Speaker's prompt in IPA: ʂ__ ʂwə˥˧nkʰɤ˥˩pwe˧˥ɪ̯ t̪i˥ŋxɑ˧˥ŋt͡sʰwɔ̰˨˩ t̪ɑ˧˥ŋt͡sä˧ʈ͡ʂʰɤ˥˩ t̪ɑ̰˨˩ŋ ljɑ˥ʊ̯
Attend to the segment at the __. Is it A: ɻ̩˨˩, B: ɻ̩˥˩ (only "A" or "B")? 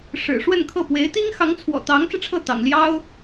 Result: A